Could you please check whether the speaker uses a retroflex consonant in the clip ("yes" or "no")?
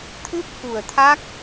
no